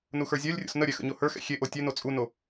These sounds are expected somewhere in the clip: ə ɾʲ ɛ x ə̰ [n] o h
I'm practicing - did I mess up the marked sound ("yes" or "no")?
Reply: yes